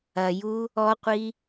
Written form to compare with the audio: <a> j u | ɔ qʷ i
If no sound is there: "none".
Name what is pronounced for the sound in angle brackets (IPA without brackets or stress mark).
ɐ